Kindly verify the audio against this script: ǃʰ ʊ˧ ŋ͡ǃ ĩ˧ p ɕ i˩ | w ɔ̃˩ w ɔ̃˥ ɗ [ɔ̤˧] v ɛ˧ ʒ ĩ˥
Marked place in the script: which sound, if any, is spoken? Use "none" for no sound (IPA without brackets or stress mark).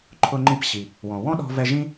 ɔ̤˧